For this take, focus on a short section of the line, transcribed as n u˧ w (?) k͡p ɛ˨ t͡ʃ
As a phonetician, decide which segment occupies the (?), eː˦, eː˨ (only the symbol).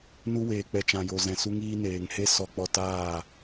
eː˨